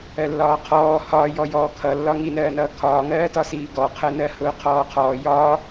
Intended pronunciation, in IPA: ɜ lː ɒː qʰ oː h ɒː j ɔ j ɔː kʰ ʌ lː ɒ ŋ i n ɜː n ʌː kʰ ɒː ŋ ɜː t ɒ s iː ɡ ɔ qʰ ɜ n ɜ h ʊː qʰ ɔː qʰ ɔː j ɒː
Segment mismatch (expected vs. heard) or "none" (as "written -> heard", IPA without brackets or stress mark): oː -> ɔː